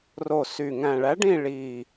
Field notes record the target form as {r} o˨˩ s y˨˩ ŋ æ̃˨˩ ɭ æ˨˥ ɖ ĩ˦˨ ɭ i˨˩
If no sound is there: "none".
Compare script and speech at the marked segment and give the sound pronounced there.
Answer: r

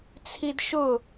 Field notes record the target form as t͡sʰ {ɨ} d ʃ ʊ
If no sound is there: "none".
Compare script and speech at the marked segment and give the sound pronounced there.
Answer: i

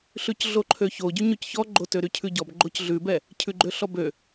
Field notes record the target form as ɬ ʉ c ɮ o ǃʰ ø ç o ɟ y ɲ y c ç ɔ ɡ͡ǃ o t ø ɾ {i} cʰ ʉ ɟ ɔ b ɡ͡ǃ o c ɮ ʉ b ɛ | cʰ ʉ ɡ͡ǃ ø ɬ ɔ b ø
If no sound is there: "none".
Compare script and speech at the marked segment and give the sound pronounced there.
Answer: y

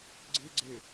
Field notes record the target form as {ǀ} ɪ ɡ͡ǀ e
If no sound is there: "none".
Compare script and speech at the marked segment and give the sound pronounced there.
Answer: ɡ͡ǀ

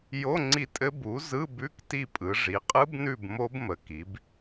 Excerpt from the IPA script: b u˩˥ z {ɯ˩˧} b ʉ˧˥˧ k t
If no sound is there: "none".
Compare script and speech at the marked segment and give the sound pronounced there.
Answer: ɯ˧˥˧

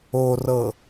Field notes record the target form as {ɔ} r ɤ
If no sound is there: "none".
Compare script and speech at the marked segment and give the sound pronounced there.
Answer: o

